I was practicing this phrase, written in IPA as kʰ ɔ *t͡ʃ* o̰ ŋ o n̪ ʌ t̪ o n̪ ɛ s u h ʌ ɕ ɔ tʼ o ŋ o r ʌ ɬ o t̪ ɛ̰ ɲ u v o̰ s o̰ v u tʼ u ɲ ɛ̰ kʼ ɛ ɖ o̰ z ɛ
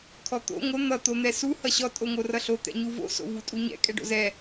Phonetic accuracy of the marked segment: incorrect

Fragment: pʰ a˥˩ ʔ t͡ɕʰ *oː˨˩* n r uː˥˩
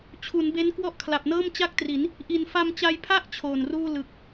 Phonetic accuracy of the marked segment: correct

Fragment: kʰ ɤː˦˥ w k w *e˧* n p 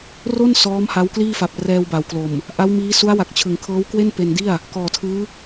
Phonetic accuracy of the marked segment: incorrect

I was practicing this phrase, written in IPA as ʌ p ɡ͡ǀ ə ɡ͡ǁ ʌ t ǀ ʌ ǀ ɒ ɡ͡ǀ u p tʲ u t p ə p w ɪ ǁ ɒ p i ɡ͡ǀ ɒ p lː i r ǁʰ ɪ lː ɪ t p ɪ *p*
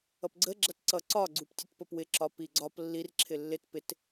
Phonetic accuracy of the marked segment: incorrect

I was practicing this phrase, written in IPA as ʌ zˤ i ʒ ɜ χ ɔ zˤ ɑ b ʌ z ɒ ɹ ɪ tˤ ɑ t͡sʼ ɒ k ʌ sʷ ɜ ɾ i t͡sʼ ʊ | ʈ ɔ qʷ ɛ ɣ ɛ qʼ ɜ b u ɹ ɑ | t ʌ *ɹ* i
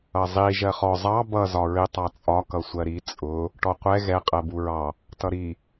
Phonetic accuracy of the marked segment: incorrect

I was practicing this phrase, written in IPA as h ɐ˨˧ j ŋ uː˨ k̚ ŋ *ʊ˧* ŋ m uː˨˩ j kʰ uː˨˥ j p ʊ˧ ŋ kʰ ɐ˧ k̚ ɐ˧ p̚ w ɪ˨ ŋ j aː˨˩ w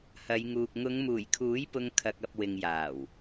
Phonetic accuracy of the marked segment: incorrect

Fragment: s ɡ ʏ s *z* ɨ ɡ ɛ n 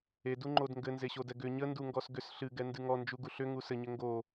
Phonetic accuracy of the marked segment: incorrect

